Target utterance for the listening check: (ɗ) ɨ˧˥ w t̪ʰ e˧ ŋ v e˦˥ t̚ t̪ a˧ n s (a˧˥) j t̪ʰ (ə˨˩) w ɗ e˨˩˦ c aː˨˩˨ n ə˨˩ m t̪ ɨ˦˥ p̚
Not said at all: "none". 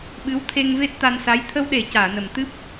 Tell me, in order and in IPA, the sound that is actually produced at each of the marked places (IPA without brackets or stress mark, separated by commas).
ɓ, a˧˥, ə˧